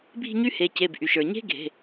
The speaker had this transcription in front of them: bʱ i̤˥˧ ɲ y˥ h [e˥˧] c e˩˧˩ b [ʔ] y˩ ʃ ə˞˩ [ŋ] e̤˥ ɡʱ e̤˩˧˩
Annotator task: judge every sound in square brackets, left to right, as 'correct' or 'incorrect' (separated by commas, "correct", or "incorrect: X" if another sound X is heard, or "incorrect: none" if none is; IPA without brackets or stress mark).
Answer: incorrect: e˩˧˩, correct, incorrect: ɲ